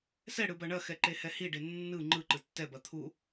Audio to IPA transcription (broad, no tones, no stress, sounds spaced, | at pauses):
s ɛ ɽ ɯ b ɐ ɳ ɐ x ɛ ǃ e h ɛ h i ɖ e nː ɯ ŋ͡ǃ ɯ ǃ ɯ tː ɛ b ɐ t̪ʰ u